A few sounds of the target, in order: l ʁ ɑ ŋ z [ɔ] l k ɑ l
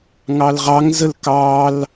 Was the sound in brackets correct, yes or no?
no